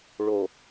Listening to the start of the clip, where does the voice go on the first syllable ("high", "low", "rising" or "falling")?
low